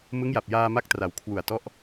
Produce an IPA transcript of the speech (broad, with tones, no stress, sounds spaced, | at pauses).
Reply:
m ɯ˦˥ ŋ j a˨˩ p̚ j aː˧ m a˦˥ k̚ t r a˩˦ w kʰ w u˨˩ a̯ t ɔ˦˥ ʔ